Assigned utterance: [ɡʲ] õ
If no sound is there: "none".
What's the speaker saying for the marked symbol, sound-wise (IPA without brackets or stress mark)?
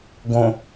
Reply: ɡ